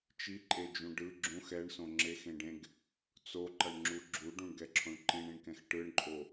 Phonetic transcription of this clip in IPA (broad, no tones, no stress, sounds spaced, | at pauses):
t͡ʃ i ǃʼ e d͡ʒ ũ ɖ ɯ ɡ͡ǁ ũ x ɛ ɳ s õ ŋ͡ǁ e x ẽ ɖ ẽ ɡ | t͡s o ǃ ʌ ɳ ŋ͡ǁ u ɡ͡ǁ u ɖ ũ ɳ ɡ ɛ ǁʰ õ ɳ ǃ ĩ ɳ ĩ ɳ k ɛ̃ x ʈ ɯ ɳ ǃʼ o